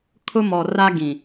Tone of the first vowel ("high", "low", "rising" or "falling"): high